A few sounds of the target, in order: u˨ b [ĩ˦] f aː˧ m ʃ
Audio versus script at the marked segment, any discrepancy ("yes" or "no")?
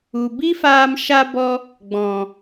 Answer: yes